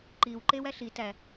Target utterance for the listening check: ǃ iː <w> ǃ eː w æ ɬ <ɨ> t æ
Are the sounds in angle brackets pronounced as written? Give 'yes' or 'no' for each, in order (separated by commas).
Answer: yes, no